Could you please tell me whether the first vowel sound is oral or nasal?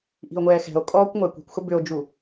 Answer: oral